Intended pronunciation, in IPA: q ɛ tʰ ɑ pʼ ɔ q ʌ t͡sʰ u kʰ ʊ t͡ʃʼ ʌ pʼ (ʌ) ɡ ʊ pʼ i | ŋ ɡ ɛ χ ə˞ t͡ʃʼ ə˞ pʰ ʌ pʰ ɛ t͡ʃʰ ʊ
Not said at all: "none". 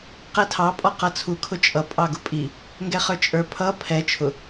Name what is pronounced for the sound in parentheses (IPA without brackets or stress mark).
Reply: ɑ